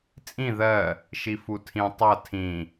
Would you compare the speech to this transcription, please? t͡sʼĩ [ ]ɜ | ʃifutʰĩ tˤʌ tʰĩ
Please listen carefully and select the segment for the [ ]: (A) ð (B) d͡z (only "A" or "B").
A